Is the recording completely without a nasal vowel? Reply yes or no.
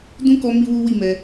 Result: no